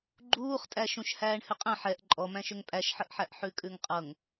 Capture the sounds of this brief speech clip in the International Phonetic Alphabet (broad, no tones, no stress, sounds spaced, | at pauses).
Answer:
ɡ͡ǃ uː χ tʼ æ ʃ ũ ʃ h æː ɳ h ʏ qʼ ɛ̃ ħ ɛ ʔ ǃʼ ɔ m æ̃ ʃ ʏ ŋ pʼ æ ʃ ħ ə ʔ ħ æ ʔ ħ ʉ kʼ ʉ ŋ qʼ ɤ ŋ